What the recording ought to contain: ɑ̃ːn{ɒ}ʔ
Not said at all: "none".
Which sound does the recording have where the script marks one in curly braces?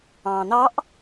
ɑ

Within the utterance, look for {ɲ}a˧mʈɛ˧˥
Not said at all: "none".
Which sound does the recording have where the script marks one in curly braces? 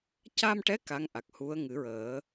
c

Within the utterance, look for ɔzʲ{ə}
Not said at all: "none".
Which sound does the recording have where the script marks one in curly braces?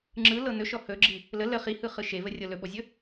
ɵ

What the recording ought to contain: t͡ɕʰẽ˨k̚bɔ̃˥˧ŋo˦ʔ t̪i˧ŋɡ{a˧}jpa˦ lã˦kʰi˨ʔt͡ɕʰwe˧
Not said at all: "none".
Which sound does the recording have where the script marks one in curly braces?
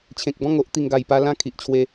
a˨˩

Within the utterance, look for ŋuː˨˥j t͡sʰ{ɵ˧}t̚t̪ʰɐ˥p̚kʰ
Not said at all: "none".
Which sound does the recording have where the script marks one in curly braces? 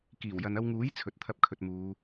ɵ˨˥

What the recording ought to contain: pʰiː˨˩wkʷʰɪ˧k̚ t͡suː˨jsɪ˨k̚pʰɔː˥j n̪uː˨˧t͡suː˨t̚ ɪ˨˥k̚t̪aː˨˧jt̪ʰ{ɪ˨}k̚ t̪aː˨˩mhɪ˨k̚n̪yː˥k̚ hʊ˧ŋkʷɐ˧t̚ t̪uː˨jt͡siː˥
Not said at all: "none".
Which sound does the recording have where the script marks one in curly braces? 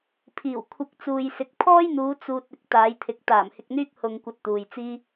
ɪ˨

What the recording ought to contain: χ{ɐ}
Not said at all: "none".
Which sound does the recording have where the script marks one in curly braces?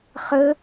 ə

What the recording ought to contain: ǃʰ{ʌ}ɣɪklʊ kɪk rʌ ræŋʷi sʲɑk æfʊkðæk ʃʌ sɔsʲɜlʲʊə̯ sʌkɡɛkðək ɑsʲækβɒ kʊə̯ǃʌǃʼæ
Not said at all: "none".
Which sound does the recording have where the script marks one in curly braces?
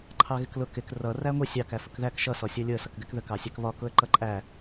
ɑ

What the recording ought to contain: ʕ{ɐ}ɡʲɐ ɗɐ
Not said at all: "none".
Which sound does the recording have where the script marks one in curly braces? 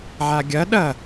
a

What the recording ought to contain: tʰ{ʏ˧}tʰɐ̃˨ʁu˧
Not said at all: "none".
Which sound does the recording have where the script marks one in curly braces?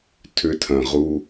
ʏ˧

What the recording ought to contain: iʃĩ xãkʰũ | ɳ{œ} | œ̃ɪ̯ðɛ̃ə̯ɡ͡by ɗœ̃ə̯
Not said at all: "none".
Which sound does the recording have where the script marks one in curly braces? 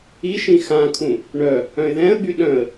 œ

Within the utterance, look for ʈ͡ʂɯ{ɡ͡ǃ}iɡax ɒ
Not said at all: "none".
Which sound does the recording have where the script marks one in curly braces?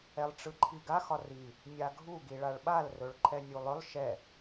ǃʰ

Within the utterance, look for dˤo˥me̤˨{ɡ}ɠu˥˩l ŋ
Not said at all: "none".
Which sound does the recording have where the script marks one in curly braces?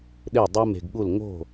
ɡ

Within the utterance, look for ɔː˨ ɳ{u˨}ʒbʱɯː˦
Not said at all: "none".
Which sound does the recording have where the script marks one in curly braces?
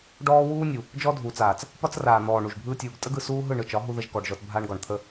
u˨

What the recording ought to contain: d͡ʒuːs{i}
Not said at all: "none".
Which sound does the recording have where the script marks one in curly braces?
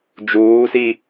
i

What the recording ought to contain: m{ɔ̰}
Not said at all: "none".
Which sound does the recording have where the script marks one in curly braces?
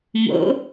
o̰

